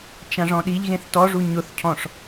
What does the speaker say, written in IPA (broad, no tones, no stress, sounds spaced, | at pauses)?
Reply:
t͡ʃ ã ʐ ɔ̃ ɗ i ʎ ɣ ẽ θ t ɔ ʐ u ɲ ʊ θ cʰ ɔ̃ ʂ